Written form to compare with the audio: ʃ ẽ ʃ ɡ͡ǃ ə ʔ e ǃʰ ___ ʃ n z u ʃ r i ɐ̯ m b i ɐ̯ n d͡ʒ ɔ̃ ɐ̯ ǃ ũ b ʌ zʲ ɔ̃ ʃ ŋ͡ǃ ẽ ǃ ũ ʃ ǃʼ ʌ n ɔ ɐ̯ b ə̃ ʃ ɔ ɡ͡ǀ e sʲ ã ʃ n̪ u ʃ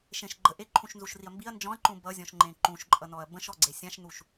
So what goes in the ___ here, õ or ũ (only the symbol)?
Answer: ũ